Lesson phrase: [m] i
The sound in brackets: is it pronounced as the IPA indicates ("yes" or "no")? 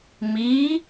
yes